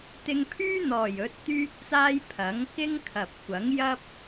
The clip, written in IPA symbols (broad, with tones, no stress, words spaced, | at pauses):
t̪ɪ˧ŋpʰyː˥n̪ɔː˨˩j ɵ˨˥t̚t̪yː˥k̚t͡saː˥j pʰɐ˨˥ŋkɪ˥ŋkʰɐ˨p̚ kʷɐ˨˥ŋjɐ˥p̚